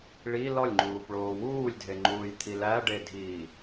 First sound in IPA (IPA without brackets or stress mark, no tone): ɭ